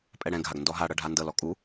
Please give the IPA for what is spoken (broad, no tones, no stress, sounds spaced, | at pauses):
pʼ ɛ ɽ ɛ̃ ɡʱ a ɡ n d ɔ ɦ a ɽ ɤ ɖʱ a n d ɤ l ɔ kʼ u